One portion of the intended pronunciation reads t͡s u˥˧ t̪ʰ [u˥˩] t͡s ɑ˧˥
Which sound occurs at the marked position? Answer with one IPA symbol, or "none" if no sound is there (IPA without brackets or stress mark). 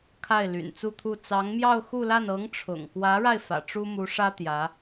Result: u˥˩